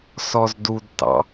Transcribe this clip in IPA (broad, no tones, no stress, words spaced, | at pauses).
sɔzdudtɑ̰